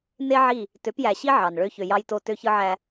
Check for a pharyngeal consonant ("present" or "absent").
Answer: present